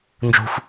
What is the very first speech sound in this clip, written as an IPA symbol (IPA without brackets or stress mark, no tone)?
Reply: n